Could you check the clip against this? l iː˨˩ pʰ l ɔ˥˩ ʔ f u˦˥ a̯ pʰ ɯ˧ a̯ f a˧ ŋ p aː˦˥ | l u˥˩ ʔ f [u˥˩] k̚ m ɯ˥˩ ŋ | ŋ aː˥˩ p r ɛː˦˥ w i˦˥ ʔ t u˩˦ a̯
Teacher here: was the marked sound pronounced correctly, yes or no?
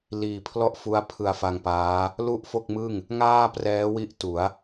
no